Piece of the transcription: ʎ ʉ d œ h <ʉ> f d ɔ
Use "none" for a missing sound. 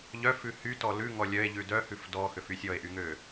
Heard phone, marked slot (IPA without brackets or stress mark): ʉ